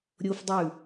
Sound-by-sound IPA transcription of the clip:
ɾʲofdˤʉ

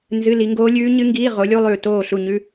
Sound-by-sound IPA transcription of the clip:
nzɨ˧˥˧li˨˦ ŋɡoː˦˥lʲʉː˦˥ ɲɨ˦˥ŋɡiː˧˥˧ ʁo˨˦lʲu˧˥˧lˠʉː˧˩ toː˥˨ ɬu˥˨ɲʉ˧˥˧

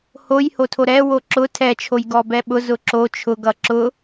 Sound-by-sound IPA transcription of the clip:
hojhotʰo ɾɛ woǁʊ tʰɛt͡ʃʰoj ɡɔbɛɓʊ zʊǁo t͡ʃʰʊɡʌ ǁʊ

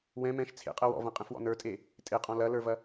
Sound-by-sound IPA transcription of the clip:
wɛ̃ mɛ̃ʃ t͡sʰḛqʼɜ wɔ̰vɐ̃qʼɛ̃fwɔ̰ nə˞tʼe | tʼeqʼɔ̃ lɐlə˞vɐ

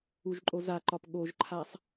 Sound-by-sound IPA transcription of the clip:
uʒǃʼozaǃɒp ɠoʒǃʰasˤ

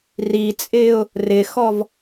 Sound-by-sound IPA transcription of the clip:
rit͡sʼɪːʊ̯ | rɪxɔv

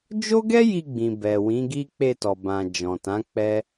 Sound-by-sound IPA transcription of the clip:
d͡ʒo˦ɡɛ˦ji˧ɡ͡bĩ˨ bɛ˨wĩ˨˦ɡi˦ k͡pe˧tɔ˨bã˨ d͡ʒɔ̃˨tã˨˦ k͡pɛ˦

